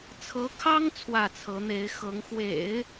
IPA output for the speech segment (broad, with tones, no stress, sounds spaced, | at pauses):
t͡sʰ ɤ˧˥ kʰ ɑ˥ ŋ t͡sʰ w ä˥˩ t͡sʰ ɤ˧˥ n̪ e˧˥ ɪ̯ x ɤ˧˥ ŋ x w ḛ˨˩˦ ɪ̯